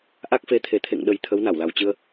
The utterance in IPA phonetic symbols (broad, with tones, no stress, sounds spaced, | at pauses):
ʔ a˦˥ k̚ f e˨˦ t̪ʰ e˨˩ t̪ʰ ḛ˧˨ ŋ ɗ ə˨˩ j t̪ʰ ə˨˦ w n a˧˩ w l a˨˩ w t͡ɕ ɨ˧ ə̯